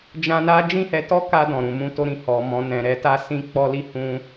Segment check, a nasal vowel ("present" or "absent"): present